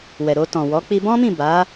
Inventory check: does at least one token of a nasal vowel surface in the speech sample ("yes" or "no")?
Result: yes